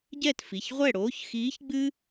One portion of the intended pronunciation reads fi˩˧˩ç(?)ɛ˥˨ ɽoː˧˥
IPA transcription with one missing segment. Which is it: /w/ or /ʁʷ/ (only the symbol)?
ʁʷ